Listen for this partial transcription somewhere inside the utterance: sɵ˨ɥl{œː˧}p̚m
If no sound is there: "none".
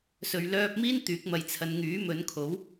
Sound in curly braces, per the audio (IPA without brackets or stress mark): œː˧